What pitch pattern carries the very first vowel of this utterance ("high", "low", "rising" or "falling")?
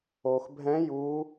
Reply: low